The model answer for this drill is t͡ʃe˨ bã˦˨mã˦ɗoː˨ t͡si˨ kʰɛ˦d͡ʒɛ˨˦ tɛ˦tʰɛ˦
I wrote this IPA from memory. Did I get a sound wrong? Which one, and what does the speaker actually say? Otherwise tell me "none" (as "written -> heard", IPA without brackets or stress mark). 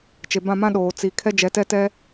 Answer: tʰ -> t